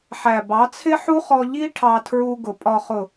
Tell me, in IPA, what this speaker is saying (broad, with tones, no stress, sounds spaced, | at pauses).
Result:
ħ æ˨ b ɑ˨˦ t͡sʰ ɪ˦ ħ u˦ χ ɔ˧ ʎ i˦ ʈʰ ɑ˧ tʰ ɹ u˧ ɡ ʊ˨ pʼ ɒ˨ χ ʊ˨